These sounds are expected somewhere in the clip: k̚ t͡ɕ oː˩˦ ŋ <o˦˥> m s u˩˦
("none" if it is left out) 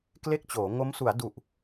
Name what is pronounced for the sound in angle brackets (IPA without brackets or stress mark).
o˦˥